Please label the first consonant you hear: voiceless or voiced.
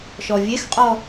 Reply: voiceless